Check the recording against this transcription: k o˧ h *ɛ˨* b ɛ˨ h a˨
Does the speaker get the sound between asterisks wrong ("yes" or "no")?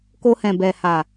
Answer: yes